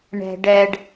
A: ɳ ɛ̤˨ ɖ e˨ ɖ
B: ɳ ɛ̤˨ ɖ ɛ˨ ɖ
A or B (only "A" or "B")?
B